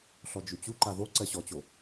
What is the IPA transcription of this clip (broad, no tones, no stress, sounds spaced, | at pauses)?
ɬ ɔ d͡ʒ ʉ t͡ɕ u ǃ a ð o ǀ ɜ ɕ ɔ t͡ɕ o